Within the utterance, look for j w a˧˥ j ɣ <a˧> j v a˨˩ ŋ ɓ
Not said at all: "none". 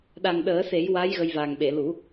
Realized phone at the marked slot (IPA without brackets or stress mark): ə˧